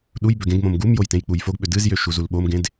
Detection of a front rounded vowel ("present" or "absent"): present